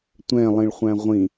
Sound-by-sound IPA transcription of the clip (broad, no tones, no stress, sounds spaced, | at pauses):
tʷ ɛ̃ lˠ ĩ ɭ χʷ æ̃ ʁʷ ĩ